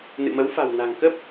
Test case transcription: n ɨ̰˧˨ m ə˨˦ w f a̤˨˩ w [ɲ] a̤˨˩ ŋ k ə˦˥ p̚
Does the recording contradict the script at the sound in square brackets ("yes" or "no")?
yes